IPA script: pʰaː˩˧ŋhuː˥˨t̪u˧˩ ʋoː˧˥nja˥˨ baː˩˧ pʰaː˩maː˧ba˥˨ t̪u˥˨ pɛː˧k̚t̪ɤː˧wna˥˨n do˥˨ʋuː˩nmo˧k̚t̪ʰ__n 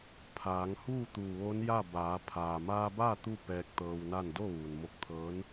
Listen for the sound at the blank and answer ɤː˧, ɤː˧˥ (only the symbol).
ɤː˧˥